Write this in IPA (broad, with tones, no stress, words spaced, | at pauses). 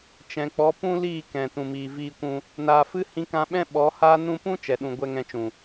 t͡ʃɛ̃˨k͡pɔ˨˦pũ˦liː˦˨ kɛ̃˨ tũ˨miː˨viː˧kʷũ˧ | naː˨fɨ˦ hĩ˧kã˧ɓɛ̃˦ ɓɔ˨˦haː˦ nũ˧pũ˦ t͡ʃɛ˨ɗũ˨ ɡʷɛ˧ŋɛ̃˧t͡ʃũ˨